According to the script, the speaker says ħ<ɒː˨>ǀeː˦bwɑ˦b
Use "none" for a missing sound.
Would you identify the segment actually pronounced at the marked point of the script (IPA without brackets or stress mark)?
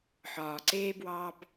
ɒː˨